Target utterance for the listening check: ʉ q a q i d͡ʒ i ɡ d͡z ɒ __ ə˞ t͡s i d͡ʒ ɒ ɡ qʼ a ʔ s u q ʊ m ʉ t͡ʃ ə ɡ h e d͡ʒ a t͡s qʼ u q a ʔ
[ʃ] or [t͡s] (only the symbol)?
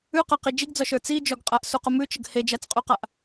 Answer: ʃ